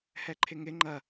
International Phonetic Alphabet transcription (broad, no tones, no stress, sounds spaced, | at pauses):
h ɛ ǃʰ ɪ ŋ ɪ ŋ͡ǃ ɐ